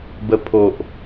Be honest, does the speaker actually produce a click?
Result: no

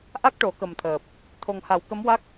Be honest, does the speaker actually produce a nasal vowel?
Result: no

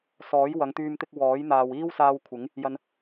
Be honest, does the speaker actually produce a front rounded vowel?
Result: yes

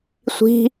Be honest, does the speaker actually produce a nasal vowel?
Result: no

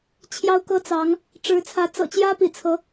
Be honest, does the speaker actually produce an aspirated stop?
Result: yes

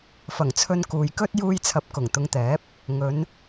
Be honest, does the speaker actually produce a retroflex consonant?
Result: no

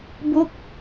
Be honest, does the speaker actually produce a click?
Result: no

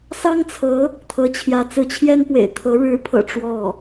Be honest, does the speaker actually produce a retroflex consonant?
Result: yes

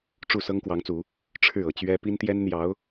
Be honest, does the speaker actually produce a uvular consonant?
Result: no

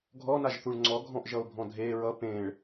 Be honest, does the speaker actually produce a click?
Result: yes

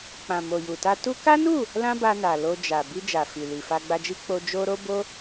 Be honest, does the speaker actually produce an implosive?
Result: no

